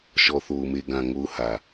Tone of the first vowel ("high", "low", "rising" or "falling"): low